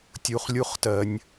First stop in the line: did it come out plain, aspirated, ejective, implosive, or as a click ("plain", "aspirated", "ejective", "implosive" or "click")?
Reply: plain